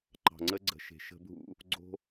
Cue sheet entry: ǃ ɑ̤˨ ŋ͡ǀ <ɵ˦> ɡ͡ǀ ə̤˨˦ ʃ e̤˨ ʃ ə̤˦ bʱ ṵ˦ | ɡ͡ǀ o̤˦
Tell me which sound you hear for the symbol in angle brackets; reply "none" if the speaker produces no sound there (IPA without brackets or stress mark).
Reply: ə˦